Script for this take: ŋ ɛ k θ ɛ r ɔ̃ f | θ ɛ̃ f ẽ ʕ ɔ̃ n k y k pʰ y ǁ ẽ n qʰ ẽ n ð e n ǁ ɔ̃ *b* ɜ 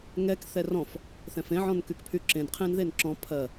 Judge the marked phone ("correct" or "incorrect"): incorrect